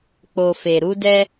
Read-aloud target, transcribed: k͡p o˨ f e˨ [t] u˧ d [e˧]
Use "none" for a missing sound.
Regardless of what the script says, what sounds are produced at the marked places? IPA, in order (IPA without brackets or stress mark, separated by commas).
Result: ɾ, ɛ˧